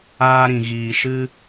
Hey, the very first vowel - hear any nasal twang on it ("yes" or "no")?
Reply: no